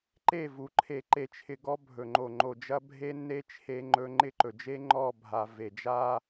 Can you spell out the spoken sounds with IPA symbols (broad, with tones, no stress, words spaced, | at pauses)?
ǃe˦˨vu˨ ǃʰe˨ǃe˨t͡ʃʰɪ˨ ɡɔ˦bʱɵ˨ŋ͡ǃo˨ ŋ͡ǃo˨d͡ʒɐ˦ bʱe˦nːe˦ t͡ʃʰe˦ŋ͡ǃɵ˦ ŋ͡ǃɪ˦˨ǃɵ˨d͡ʒe˦ ŋ͡ǃɔ˦˨bʱa˨ ve˨d͡ʒa˦